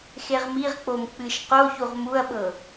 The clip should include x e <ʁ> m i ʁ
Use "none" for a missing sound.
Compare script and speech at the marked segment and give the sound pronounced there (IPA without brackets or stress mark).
ʁ